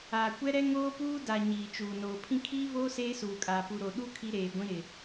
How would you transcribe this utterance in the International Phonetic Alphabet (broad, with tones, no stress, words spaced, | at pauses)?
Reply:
aː˨ kʷɛ˦ɾɛ˦ ŋoː˦puː˦ da˨ ɲiː˨t͡ʃuː˨ noː˨ pʰĩ˦ kʰiː˦voː˦ seː˦suː˨kʼaː˨ pu˨ɾo˨ ɗu˦ kʰi˦ɾeː˨ɡʷĩ˦ ɾɪ˨